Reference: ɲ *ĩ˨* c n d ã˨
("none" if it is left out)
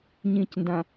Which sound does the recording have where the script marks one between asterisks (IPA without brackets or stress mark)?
ĩ˨